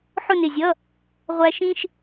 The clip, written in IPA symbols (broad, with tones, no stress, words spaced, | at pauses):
ħʊ˥˧nɪ˧˩zʲʌ˧˥˧ | ʁʷæ˧ ʃĩ˧ʃ